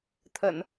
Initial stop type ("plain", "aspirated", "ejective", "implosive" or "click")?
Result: aspirated